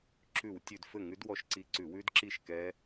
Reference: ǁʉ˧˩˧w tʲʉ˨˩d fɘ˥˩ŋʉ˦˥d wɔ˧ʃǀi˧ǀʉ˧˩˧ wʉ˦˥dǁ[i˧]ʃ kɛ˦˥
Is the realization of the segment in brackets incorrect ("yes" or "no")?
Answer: yes